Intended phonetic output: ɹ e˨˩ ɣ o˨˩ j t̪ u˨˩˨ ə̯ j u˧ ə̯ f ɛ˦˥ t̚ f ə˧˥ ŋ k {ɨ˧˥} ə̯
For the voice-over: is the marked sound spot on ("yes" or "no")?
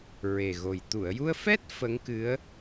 yes